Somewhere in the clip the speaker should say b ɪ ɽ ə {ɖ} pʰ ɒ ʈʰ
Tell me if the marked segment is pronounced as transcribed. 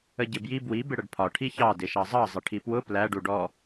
yes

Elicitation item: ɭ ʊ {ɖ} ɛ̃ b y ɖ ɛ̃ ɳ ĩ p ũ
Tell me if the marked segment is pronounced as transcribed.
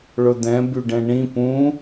no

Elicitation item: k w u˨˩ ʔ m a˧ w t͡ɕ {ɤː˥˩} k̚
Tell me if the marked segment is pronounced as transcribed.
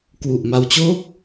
no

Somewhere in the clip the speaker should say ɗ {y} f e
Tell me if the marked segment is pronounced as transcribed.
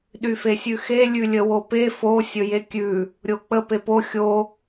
yes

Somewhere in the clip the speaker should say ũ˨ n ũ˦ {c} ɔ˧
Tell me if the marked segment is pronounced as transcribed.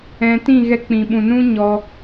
no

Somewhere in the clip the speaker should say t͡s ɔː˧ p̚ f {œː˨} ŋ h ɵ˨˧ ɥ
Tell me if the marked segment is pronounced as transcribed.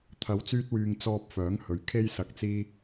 no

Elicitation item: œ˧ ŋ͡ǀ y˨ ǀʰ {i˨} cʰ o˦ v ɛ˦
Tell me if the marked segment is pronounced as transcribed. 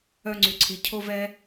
yes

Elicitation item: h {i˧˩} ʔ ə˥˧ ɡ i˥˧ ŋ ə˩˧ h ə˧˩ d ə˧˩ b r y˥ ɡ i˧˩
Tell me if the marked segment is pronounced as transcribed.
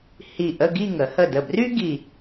yes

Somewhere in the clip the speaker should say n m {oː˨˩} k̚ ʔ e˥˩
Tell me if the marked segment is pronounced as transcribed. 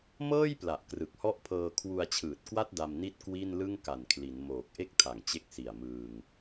yes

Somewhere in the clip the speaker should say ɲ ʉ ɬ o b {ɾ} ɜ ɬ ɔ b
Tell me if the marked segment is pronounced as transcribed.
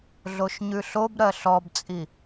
yes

